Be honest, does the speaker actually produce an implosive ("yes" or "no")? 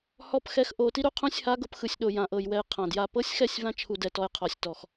yes